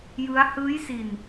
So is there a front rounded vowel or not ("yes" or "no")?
no